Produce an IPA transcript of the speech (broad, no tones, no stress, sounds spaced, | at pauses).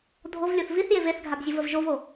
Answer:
dʱ o v lʲ o θ v i θ j e v e θ ɡʱ a b zʲ o v ə v ʒ o v o